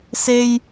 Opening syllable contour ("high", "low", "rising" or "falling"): high